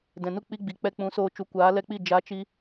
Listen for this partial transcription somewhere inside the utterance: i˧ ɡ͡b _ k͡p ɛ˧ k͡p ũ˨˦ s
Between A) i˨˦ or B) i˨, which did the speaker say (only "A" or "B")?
B